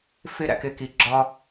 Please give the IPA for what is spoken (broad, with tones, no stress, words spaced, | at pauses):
fɪ˧ ɾæ̰˦kɪ˦ki˧ɡ͡ǁɒ˦